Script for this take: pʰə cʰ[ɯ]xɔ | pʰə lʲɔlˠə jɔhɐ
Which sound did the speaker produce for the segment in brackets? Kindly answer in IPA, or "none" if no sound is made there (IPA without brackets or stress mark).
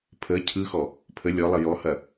ɯ